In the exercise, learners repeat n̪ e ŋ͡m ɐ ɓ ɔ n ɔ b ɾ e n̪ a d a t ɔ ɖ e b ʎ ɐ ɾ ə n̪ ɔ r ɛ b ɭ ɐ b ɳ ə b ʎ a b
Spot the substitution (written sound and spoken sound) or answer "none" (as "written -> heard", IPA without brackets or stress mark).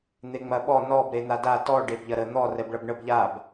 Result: none